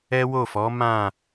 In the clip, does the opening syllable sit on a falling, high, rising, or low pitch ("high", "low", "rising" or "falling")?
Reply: high